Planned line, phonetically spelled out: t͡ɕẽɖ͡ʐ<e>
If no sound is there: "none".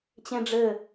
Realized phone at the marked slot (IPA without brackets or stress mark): ɘ